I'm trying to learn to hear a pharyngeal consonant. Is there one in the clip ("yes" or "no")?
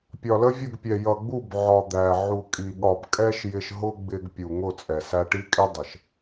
yes